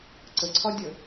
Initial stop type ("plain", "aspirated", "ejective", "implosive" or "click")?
click